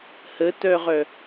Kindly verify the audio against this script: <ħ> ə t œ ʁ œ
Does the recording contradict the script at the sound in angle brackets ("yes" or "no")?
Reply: yes